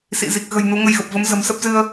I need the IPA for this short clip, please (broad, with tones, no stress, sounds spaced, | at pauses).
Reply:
s ḭ˧˨ z i˨˩ k̚ ɣ ə̤˨˩ j n u˨˦ ŋ ə˧ j ɣ ə˨˩ p̚ v ə˨˦ m z ə̤˨˩ m s ə˦˥ p̚ z ɨ˧ ə̯